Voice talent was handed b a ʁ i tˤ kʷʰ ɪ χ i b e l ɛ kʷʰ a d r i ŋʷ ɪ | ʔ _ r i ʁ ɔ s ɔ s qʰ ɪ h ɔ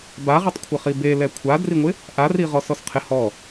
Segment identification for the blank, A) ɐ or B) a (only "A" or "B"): B